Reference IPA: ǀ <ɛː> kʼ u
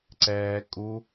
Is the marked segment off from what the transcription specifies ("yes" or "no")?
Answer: no